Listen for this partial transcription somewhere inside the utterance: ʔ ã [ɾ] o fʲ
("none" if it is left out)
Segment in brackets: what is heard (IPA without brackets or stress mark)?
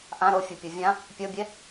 ɾ